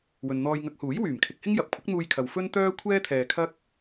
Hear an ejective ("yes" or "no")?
no